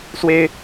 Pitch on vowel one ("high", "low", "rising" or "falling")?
high